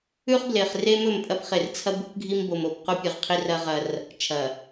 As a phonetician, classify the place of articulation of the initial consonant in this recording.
uvular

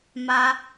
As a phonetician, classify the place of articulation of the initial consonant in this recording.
labial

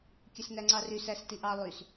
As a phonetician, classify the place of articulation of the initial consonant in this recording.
velar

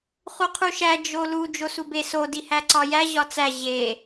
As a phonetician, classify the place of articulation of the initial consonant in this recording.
uvular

